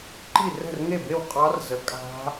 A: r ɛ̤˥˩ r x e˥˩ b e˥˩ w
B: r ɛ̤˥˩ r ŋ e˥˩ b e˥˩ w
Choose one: B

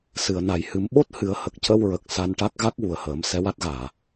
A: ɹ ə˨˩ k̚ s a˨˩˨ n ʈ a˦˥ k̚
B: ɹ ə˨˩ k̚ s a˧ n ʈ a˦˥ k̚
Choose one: B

